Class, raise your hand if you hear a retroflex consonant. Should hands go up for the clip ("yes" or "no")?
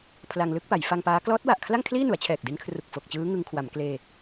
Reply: no